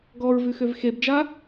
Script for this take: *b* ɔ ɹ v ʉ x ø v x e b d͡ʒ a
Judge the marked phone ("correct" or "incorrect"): incorrect